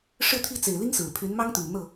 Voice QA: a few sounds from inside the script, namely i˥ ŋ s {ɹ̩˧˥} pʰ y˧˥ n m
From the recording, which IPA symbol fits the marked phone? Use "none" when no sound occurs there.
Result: ɹ̩˨˩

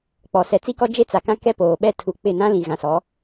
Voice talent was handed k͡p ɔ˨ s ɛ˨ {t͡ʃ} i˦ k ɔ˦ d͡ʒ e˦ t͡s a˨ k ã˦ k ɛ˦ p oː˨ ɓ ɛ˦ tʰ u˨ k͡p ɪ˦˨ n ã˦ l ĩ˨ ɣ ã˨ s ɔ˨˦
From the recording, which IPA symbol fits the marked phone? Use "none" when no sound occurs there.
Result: t͡s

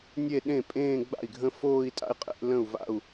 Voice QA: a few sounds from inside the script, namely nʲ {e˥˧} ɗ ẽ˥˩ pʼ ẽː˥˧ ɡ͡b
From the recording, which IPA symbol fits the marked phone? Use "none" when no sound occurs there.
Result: e˥˧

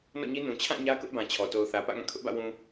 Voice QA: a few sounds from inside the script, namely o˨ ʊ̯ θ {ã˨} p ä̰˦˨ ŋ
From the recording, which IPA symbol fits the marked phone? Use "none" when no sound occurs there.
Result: ä˨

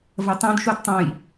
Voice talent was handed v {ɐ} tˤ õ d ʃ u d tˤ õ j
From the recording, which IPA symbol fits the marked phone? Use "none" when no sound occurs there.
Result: ɐ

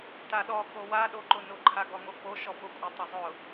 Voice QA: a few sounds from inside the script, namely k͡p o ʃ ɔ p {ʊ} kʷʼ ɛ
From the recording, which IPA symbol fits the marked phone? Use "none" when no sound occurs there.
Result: ʊ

